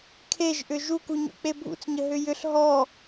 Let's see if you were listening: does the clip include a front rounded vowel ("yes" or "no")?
yes